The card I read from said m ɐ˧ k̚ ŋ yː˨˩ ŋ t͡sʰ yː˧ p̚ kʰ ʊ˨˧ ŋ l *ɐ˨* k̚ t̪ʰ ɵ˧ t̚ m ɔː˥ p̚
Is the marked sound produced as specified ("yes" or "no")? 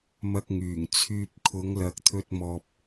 yes